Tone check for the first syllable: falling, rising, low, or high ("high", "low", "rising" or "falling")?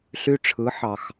high